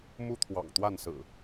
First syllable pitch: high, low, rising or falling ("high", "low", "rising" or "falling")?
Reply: high